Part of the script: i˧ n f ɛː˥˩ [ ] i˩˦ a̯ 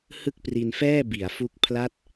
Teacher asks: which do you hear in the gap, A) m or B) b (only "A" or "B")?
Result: B